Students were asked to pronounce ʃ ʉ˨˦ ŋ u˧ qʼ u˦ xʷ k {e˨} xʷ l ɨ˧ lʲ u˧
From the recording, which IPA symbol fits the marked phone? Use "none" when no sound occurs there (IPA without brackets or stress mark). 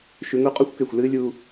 e˨